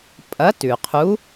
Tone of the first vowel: rising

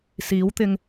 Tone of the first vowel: rising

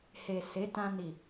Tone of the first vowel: low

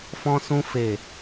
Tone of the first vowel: high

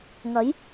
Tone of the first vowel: rising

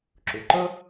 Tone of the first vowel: low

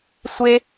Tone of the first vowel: high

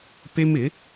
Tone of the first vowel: high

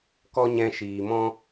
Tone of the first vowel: high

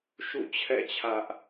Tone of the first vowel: falling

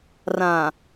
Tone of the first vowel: low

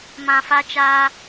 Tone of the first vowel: low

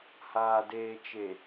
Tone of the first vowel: low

